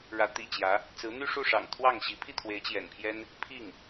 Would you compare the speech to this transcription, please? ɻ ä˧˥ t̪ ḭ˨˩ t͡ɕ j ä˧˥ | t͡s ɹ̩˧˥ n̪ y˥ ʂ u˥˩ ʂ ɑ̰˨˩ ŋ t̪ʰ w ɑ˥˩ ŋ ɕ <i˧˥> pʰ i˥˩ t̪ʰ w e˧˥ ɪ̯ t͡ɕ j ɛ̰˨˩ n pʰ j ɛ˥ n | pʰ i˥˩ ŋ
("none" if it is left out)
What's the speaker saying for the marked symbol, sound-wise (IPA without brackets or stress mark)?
i˧˥